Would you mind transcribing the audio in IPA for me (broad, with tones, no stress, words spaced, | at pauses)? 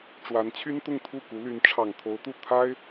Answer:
ʈ͡ʂwa˧˥nt͡ɕʰy˥n t̪ʊ˥˧ŋt̪ʰu˥˩ku˧˥ly˧˥n ʈ͡ʂʰɑ˨˩ŋt̪ʰo˧˥ʊ̯t̪u˥˩ t̪ʰa˥ɪ̯